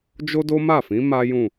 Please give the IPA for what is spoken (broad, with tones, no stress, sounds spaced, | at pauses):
d͡ʒ o˦ d o˦ m a˦˨ f ĩ˨˦ m a˦ j ũ˦˨